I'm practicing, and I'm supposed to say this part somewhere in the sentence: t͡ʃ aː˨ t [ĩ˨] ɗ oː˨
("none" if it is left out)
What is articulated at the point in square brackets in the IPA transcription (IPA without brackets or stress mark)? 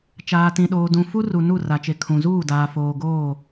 ĩ˨